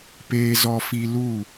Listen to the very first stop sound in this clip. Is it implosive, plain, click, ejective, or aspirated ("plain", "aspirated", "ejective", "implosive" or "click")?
plain